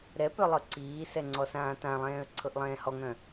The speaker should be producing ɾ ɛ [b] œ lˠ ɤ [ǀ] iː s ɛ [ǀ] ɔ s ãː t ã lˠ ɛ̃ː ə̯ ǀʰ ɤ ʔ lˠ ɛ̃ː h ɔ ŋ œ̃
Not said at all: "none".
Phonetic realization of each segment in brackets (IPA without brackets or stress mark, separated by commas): p, ǀ, ŋ͡ǀ